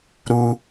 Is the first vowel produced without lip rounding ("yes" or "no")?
no